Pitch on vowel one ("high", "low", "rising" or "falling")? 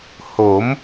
rising